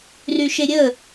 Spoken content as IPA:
ryʃeɾʲə

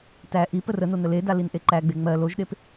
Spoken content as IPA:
tæ ʔi pərəno nəleda linʔeǃæɡ͡be ŋ͡mɜ loʒɗep

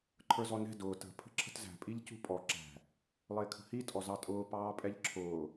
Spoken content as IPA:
ǃʰə˞zɔnɛ̤ dʊː tə̤ pʰə̤ǁʰə̤tzæ̤ pʼiʎcṳpʼɔ ǁæ̤ | lˠɪːkʰə̤hi tʼɔzɑtʼʊː pɑːpʼɛʎǁʰʊː

